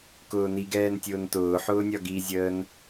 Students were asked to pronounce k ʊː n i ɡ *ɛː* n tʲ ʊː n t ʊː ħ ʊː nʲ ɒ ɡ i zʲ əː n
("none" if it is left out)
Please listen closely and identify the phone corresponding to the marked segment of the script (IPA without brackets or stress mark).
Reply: ɛː